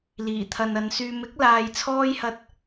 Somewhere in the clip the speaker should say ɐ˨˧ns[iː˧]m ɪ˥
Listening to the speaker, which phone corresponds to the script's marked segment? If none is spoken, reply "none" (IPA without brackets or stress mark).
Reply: yː˧